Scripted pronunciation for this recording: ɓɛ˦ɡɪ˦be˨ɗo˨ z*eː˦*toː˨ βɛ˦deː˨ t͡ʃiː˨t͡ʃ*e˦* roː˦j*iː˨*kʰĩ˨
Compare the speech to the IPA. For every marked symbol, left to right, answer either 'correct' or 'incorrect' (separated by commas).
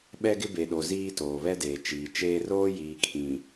incorrect, incorrect, correct